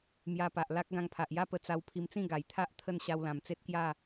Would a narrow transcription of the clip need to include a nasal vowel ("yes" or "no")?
yes